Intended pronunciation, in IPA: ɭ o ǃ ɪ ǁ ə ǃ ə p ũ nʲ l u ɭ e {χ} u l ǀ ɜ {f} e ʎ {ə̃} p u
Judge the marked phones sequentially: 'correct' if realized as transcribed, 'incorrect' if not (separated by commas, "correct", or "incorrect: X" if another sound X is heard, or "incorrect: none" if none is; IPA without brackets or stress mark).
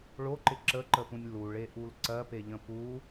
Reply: incorrect: ʔ, incorrect: p, correct